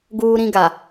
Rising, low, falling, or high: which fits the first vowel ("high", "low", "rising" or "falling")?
high